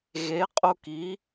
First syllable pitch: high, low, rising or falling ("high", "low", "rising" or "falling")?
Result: rising